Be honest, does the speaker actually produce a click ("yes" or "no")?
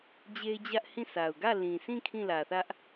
no